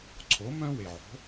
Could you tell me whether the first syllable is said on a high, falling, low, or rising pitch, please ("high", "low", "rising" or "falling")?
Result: rising